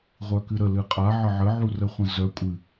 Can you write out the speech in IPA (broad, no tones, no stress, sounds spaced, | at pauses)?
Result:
ʁʷ œ k ɨ ɾ ə l ɨ qʼ a ʕ ə ʕ ə ʕ u r ə χʷ ə̃ z œ kʷʼ ɨ